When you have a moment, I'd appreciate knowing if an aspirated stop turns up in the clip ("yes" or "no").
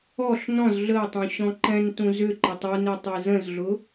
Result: no